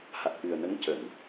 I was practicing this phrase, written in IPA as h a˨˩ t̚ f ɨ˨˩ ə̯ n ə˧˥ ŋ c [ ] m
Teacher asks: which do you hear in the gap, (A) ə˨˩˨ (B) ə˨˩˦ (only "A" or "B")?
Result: A